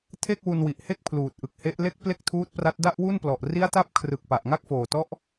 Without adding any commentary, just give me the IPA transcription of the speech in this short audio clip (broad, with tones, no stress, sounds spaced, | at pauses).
tʰ e˥˩ k̚ w u˧ n w i˨˩ ʔ h e˥˩ k̚ pʰ l uː˨˩ t̚ ʔ ɯ˨˩ k̚ h e˦˥ ʔ l e˥˩ k̚ p l e˥˩ k̚ tʰ uː˦˥ t̚ p r a˦˥ t̚ d a˥˩ ʔ w u˥˩ n p l ɔ˨˩ ʔ r i˦˥ a̯ t a˦˥ p̚ kʰ r ɯ˨˩ k̚ p a˨˩ ʔ ŋ a˥˩ k̚ f oː˨˩ t ɔ˦˥ ʔ